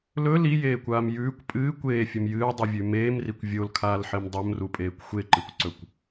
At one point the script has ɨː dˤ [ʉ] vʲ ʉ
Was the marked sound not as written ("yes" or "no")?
yes